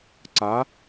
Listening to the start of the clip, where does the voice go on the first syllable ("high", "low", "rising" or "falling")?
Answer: rising